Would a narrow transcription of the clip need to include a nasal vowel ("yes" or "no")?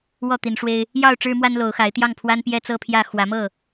no